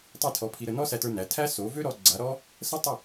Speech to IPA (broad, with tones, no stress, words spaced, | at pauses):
tˤi˥˩tʰɔ˧pʰi˧ɾə˧ nɔ˥sæ˧tə˞˧ næ˩˥tʰæ˥ so˩˥vø˥ɾɔ˧ ɡ͡ǀa˩˥ɾɔ˥ | sə˥tˤə˥˩